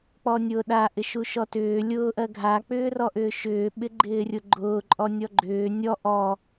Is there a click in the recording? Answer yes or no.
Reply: yes